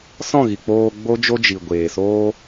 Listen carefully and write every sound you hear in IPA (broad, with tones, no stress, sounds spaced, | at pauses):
s ɔ̃˦˨ ɣ i˨ k͡p oː˧ ɡ͡b o˦ d͡ʒ o˦ d͡ʒ i˨ ɡʷ eː˨ s oː˦